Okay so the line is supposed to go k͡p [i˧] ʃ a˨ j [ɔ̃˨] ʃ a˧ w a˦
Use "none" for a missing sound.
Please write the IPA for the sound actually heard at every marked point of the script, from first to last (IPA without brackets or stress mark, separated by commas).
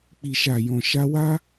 i˨, ɔ̃˨